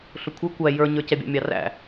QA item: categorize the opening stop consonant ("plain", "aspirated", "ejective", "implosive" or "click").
aspirated